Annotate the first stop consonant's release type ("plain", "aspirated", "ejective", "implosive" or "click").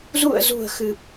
plain